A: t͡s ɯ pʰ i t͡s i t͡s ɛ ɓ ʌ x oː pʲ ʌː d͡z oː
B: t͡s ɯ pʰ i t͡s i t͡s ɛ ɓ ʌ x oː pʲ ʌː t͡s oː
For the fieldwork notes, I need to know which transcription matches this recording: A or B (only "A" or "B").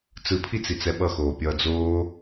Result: A